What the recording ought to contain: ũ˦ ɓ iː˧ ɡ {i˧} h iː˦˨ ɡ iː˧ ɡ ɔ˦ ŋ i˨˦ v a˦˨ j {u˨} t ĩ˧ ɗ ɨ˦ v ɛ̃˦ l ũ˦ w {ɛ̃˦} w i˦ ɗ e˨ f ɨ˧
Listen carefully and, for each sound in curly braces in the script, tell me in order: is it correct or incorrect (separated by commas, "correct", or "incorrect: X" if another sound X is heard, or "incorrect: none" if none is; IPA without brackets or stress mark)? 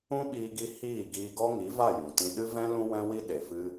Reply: correct, incorrect: ũ˨, correct